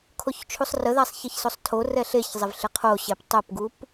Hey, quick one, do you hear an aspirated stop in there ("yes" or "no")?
yes